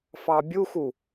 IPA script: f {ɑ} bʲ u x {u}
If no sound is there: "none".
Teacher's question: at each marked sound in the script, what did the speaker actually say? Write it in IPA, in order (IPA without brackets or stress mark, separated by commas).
ɑ, u